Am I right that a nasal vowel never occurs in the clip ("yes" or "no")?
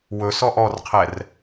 yes